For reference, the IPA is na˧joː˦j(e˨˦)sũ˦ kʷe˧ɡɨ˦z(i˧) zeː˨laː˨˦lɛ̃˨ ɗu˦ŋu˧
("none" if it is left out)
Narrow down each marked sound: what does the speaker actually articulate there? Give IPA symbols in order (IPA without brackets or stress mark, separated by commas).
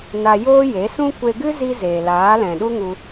e˨˦, i˧